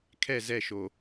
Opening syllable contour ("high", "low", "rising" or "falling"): falling